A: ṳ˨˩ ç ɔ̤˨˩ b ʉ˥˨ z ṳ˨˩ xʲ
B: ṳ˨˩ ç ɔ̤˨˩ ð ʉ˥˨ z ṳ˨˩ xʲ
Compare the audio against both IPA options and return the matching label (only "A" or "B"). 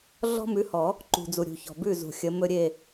A